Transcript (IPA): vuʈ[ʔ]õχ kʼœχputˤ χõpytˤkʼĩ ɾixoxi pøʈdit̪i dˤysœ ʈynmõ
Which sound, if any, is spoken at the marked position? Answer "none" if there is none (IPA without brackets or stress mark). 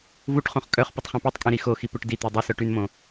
χ